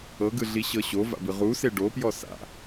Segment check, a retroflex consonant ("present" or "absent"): present